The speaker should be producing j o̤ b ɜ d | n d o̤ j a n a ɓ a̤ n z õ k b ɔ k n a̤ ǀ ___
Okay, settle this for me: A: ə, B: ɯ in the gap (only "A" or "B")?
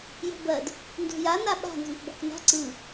B